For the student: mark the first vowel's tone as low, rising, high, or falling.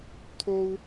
high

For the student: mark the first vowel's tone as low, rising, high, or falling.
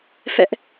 high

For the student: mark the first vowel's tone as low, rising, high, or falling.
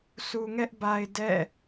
low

